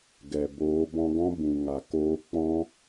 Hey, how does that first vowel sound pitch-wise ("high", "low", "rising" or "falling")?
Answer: low